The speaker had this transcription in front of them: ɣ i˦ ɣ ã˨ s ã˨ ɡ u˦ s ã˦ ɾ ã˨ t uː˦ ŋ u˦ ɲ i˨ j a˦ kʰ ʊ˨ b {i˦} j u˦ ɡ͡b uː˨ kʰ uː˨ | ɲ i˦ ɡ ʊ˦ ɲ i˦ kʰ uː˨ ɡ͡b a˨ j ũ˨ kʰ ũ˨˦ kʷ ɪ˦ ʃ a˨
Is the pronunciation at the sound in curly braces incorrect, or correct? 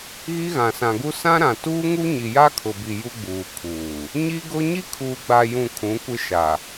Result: incorrect